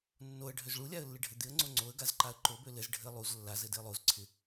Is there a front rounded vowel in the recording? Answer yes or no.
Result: yes